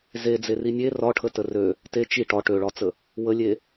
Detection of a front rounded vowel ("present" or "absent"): present